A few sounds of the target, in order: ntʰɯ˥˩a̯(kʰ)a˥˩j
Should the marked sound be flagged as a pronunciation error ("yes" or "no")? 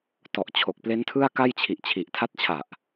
yes